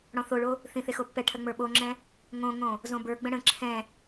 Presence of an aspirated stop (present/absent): present